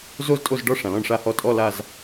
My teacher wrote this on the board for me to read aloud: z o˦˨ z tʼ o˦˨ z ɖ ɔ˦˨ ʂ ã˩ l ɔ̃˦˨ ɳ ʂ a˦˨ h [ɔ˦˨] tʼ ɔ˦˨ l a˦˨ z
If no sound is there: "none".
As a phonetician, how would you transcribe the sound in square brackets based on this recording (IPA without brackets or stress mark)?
ɔ˦˨